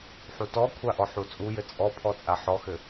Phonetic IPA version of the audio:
ħ u t ɔ kʷʰ a ʔ ɔ ħ u t͡sʼ u j ɘ t͡sʼ ɔ pʰ ɔ t͡sʼ a ħ ɔ x ɘ

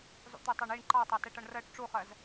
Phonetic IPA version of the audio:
zˤ ṵ t̪ ɜ tˤ ɑ ɳ i ɳ ǃ ɑ tˤ ɑ t ɛ ʈ ʌ ɳ r ɜ ʈ ʈ͡ʂ u χ ɜ z

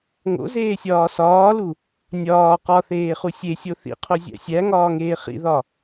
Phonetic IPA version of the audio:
ŋ o̰ z eː sʲ ɒː s ɒː l u | nʲ ɒː q ɒ θ eː χ u sʲ e sʲ o θ ḭ qʰ o zʲ æ̰ sʲ æ ŋ ɒː ŋ eː χ ḭ ð ɒ

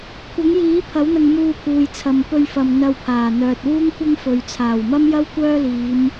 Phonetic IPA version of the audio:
kʷʰ ɐ˨˥ ŋ j iː˨˥ pʰ ɐ˨˥ w n̪ ɐ˧ ŋ m uː˧ pʰ uː˨ j t͡sʰ ɐ˨ m p ɵ˧ ɥ f ɐ˨ m n̪ ɐ˧ w pʰ aː˨˩ n̪ œː˨ t̚ w uː˥ ŋ kʷ ɐ˥ ŋ f ɵ˨ ɥ t͡sʰ aː˨˩ w m ɐ˥ m j ɐ˥ w kʷ œː˥ l iː˨˧ m

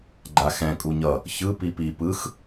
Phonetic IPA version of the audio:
ɡ͡ǃ a x ɛ̃ kʼ u ɲ ʌ | ç ɯ p i p i p ɯ x

